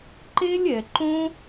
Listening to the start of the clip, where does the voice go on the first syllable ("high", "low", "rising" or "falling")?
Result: high